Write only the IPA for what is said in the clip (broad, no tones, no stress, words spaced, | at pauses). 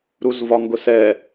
ɾuzvɒŋɡʊsɛ